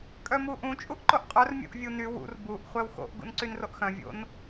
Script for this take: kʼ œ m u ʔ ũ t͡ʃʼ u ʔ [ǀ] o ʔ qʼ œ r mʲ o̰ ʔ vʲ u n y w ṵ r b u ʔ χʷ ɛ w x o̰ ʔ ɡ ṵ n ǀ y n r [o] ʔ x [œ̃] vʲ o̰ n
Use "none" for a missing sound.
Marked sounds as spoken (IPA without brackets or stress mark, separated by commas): ǃ, o, œ̃